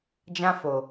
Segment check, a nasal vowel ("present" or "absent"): present